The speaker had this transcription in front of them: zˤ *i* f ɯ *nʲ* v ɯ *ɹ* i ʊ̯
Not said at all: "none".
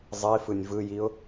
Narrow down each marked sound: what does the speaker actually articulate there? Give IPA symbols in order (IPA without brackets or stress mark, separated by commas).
i, nʲ, j